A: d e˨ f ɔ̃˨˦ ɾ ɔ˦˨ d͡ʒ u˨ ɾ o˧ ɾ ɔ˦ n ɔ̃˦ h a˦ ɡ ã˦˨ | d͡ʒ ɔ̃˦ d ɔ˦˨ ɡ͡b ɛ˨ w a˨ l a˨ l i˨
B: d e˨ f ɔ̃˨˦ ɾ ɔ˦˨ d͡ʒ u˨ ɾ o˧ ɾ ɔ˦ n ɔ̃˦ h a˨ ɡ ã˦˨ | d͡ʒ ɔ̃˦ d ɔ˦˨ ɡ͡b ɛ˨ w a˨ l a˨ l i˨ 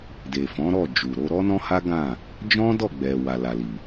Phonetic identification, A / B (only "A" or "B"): A